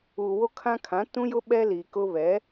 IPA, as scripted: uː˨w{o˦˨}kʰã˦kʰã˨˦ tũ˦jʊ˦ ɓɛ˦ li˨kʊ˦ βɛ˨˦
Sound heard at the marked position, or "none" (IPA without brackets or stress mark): o˦